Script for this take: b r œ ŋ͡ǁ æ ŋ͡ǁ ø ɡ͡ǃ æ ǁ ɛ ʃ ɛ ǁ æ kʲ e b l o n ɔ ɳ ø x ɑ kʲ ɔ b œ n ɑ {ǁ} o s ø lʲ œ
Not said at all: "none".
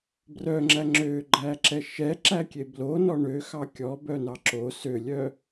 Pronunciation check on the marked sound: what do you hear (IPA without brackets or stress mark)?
ǁ